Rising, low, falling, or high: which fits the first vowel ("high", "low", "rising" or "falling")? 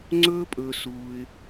high